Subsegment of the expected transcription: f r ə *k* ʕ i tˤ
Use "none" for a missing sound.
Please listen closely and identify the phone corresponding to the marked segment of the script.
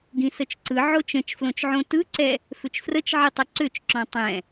t͡ʃ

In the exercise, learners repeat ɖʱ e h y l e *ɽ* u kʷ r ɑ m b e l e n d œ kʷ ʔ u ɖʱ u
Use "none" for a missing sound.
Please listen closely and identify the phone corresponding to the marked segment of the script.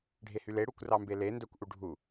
ɽ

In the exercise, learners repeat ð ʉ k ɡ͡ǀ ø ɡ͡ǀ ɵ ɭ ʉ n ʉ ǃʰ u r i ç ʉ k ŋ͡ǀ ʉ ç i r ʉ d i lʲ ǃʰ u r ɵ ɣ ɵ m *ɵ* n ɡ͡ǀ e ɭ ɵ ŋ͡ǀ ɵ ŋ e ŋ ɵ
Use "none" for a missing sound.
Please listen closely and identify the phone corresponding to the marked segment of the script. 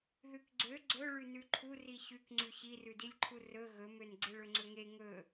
ø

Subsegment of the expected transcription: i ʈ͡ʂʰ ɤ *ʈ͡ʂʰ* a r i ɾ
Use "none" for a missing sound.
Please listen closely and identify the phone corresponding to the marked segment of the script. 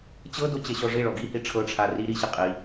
ʈ͡ʂʰ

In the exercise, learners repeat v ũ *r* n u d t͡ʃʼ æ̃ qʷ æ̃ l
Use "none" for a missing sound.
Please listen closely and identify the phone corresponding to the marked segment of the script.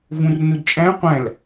r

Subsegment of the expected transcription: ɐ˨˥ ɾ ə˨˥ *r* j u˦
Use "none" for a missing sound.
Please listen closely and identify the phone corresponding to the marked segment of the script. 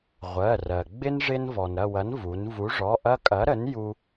n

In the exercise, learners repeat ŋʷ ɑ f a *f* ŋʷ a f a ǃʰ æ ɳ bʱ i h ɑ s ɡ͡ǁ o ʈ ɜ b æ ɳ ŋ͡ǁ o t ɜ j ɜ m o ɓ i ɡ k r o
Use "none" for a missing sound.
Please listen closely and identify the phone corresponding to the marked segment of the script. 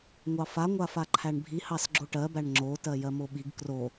none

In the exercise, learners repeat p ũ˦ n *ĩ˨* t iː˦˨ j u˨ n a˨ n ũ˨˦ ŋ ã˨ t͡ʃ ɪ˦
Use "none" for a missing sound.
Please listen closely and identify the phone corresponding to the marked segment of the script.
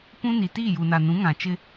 i˨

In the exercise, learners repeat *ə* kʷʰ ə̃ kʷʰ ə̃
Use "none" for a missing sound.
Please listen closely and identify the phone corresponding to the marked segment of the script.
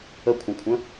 ə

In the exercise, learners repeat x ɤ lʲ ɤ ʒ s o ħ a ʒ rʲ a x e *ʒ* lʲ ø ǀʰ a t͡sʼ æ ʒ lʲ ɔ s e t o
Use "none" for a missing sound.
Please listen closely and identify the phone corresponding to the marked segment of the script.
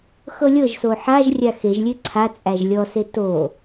ʒ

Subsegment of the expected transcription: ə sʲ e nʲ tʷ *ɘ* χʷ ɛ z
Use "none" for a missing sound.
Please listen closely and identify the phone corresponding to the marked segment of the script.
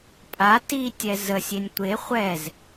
e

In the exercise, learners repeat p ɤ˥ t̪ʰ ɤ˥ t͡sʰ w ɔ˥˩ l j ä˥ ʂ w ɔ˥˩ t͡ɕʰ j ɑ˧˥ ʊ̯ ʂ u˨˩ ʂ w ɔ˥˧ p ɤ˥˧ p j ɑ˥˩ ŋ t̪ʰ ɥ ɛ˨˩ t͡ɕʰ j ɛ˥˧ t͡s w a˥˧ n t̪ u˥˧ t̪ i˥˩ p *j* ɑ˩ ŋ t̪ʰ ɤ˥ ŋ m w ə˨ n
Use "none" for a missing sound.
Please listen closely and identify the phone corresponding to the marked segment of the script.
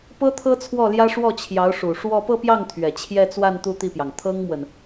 j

